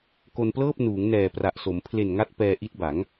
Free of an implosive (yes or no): yes